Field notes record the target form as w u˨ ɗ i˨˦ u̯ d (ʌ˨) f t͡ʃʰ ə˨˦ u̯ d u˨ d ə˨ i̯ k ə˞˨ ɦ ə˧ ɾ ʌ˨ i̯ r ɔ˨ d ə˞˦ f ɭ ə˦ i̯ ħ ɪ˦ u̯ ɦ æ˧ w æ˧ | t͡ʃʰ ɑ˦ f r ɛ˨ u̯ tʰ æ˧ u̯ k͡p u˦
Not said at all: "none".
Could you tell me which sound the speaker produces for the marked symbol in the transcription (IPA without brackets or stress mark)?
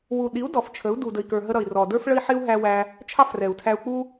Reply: ɔ˨